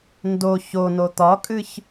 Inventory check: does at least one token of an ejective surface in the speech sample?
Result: yes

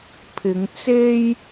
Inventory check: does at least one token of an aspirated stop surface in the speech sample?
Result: yes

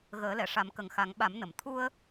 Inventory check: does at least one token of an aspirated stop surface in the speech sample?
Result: yes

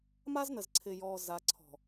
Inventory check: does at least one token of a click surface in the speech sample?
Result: yes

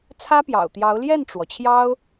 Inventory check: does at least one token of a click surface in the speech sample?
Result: no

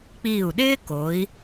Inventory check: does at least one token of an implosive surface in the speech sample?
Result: yes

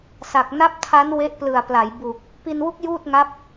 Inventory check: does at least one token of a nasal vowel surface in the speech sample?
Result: no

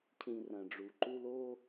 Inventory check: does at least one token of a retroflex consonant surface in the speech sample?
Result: yes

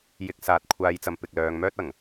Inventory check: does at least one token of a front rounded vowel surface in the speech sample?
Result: yes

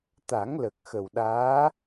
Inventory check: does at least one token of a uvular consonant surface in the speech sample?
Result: no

